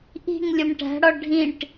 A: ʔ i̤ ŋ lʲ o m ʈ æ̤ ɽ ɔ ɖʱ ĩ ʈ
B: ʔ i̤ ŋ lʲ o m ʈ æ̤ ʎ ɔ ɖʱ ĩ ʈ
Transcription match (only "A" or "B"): A